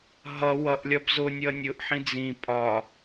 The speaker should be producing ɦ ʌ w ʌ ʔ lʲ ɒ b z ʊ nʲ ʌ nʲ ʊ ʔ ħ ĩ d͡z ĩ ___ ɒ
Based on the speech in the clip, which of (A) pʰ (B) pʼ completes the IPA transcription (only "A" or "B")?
B